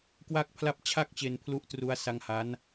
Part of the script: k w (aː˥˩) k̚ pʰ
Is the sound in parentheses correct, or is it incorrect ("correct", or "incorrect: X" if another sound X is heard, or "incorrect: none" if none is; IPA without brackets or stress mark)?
correct